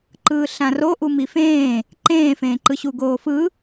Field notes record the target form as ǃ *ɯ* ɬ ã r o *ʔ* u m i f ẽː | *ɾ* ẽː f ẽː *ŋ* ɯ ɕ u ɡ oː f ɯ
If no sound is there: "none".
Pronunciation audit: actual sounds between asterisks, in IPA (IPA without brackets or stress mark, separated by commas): ɯː, ʔ, ǃ, ǃ